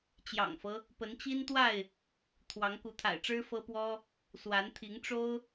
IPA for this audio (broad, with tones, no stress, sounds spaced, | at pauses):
t͡ɕ j ɑ̰˨˩ ŋ f ɤ˦ | p ə˨˦ n t͡ɕ i˦ n t̪ w a˥˨ ɪ̯ | t̪ʰ w ɑ˨˦ ŋ k u˨˦ t̪ʰ a̰˨˩ ɪ̯ ʈ͡ʂ ɻ̩˦ f ɤ˦ p w ɔ˦ | s w a˨˦ n t̪ʰ i˨˦ ŋ ʈ͡ʂ o˦ ʊ̯